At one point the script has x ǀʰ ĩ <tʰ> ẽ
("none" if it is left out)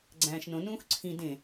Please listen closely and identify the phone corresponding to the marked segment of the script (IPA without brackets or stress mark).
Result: d